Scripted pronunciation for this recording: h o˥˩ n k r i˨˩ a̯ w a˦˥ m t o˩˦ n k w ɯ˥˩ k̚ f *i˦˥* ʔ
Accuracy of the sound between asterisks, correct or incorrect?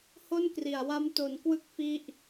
correct